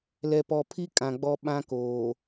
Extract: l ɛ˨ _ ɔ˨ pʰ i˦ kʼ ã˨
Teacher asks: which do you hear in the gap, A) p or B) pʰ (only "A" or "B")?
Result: A